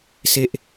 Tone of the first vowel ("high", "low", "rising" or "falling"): high